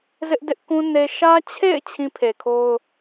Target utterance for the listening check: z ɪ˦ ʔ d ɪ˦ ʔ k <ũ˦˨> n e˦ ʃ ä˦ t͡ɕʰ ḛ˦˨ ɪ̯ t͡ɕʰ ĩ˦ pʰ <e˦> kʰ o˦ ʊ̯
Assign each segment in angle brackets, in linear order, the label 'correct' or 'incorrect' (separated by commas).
incorrect, incorrect